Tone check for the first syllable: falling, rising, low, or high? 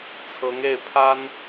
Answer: rising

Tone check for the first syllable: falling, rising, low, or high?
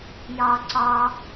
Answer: high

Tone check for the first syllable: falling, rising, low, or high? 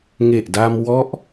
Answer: low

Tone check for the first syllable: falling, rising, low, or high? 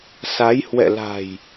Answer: rising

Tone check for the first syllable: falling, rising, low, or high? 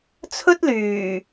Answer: high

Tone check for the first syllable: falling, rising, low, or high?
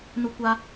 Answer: high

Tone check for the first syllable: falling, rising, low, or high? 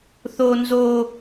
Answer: high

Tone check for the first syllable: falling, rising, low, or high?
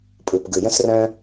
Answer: low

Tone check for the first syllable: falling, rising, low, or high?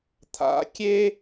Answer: rising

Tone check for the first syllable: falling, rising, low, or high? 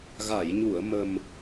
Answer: low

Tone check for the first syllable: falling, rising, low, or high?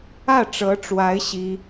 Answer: falling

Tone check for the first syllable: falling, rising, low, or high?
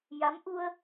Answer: rising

